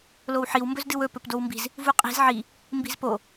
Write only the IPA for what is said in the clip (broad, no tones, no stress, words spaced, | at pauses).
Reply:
lowħiw mbɵzdɨwɵ pɵpdowmbi̤z | vuqʼi̤z ʕi | mbi̤zpo